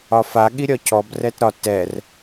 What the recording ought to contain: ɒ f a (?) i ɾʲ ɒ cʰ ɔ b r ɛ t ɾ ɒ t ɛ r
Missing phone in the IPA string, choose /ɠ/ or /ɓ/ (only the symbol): ɠ